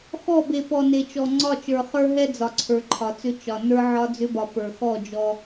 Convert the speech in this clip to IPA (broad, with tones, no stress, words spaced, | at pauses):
xɔ˦˨be˨ pɔ˨ne˨t͡ʃɔ˨ ŋ͡ǀɒ˦˨t͡ʃə˞˨ χə˞˦ɦɛ˦ d͡zɒ˨ǀʰə˞˨ǃʰɒ˨t͡sʏ˦ t͡ʃɒ˨ nə˞˦ ʕɒ˦d͡zʏ˦bɒ˨ pə˞˨xɔ˦˨ d͡ʒɔ˦